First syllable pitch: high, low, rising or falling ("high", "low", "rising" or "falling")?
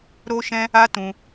high